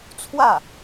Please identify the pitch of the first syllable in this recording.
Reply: falling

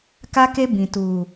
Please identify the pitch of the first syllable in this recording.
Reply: high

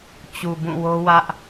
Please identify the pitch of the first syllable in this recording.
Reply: low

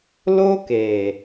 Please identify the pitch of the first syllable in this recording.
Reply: high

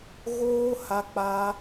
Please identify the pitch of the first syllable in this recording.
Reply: high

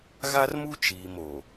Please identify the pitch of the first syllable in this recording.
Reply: high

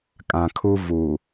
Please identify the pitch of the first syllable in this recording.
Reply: low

